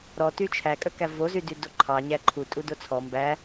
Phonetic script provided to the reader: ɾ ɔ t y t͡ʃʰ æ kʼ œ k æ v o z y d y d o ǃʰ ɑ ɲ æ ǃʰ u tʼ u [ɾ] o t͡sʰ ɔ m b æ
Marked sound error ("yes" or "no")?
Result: yes